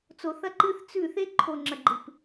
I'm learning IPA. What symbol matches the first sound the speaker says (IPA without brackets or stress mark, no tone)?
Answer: t͡s